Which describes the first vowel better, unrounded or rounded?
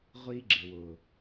unrounded